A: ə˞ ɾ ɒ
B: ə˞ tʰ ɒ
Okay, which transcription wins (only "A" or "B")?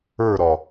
A